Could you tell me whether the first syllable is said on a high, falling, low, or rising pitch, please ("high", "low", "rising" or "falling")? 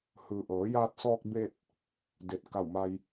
low